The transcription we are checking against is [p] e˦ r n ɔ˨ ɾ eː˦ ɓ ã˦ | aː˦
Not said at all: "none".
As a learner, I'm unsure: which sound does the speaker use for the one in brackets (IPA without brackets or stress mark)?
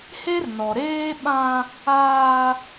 h